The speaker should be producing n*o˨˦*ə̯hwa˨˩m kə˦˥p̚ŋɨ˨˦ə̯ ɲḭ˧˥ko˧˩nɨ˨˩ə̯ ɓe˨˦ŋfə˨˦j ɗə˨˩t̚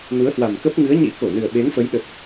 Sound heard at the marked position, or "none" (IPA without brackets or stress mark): u˨˦